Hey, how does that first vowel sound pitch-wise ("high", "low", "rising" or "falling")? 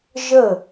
falling